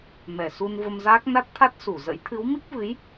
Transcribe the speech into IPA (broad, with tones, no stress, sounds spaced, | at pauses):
m ɛ˧˩ s u˧ n v ə˧ m z aː˦˥ k̚ n a˦˥ t̚ t̪ʰ a˦˥ t̚ s u˧˩ z ə̰˧˥ j t̪ʰ ɨ˨˦ w m i˦˥ k̚ v ɨ˨˦ j